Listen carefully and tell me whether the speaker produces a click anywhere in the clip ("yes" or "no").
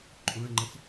yes